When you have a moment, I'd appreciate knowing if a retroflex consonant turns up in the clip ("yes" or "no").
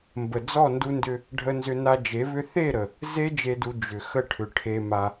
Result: yes